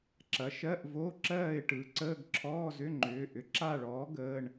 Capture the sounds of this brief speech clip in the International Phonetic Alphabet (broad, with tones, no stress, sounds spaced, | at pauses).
ǁ ɐ˩˥ ʃ ɜ˧˥˧ ʔ v o˧˥˧ ǁ ɜː˥˨ ɪ̯ ʈ ɯ˩˥ ǀ əː˧˥˧ ɡ ǁʰ ɔː˧˥˧ z ʏ˧˥˧ ŋ͡ǃ ʏː˩˧˩ ʔ ʏ˩˥ ǁ a˥˨ ɭ ɔː˩˥ ɡ əː˩˧˩ ɳ